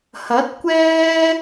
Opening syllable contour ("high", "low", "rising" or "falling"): rising